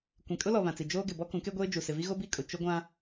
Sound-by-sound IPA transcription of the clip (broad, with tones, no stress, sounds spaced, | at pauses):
kʷ ĩ˨ kʼ ʊ˦ l ɔ˨ β ã˨ t͡s i˨ d͡ʒ oː˦ ɡ ɪ˨ b ɔ˦ k ũ˨˦ k e˦ ɡʷ eː˦ d͡ʒ u˨ s ɪ˨ v i˦ ɣ o˦ b i˦ kʼ ʊ˨ t͡ʃ ʊ˦ ɡʷ ã˦